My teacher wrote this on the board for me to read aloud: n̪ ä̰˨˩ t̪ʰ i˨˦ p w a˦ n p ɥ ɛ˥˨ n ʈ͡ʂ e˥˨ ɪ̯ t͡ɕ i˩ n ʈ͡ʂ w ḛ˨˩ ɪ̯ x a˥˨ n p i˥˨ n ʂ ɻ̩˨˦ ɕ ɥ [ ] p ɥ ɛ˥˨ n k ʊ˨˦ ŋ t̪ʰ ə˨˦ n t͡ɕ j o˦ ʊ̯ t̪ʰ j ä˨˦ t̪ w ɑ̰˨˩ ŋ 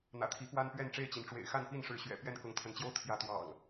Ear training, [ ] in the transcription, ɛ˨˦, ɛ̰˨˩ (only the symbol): ɛ̰˨˩